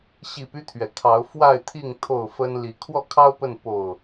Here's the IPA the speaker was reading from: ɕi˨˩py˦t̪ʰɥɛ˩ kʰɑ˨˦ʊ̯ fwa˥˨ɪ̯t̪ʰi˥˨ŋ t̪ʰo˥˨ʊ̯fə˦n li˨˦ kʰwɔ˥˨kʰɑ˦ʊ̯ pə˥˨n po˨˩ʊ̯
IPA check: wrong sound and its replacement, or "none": none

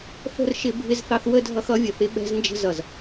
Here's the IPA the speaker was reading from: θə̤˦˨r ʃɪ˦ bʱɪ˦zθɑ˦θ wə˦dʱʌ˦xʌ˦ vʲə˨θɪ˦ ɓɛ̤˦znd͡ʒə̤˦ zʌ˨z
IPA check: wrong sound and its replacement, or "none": none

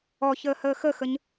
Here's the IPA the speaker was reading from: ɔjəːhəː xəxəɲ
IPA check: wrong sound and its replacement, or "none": j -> ç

